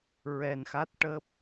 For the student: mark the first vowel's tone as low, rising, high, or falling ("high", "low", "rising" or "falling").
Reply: low